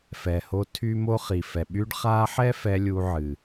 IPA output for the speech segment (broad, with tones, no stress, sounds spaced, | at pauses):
f ɛ˨ h o˧ tʰ y˦ m o˦ χ i˨ f ɛ˨ ɓ y˧ ɖ χ a˧ ħ ɛ˦ f ɛ˧ lʲ u˧ ʕ ɨ˨